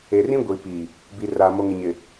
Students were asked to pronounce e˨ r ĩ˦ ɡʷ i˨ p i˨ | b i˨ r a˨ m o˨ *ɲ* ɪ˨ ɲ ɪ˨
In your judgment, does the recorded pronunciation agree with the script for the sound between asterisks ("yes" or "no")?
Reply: no